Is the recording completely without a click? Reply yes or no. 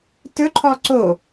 no